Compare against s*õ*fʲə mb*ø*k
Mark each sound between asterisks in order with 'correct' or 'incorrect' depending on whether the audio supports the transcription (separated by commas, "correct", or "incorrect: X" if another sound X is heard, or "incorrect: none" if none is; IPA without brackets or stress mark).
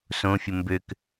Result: correct, correct